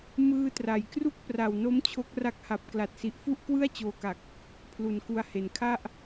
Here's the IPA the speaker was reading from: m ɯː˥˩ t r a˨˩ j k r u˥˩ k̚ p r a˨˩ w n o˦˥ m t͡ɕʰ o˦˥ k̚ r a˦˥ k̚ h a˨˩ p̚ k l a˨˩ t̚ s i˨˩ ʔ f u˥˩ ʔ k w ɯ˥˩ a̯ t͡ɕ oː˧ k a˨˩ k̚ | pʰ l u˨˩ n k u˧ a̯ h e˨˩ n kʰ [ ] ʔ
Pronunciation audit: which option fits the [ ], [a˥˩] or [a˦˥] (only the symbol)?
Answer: a˥˩